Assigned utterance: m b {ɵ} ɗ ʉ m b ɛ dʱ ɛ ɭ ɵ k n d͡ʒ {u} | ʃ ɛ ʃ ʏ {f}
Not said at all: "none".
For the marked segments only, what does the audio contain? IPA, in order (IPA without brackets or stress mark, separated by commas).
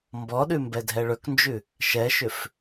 ɔ, ʉ, f